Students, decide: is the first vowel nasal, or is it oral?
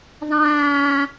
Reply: nasal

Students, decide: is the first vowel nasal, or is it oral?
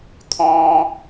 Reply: nasal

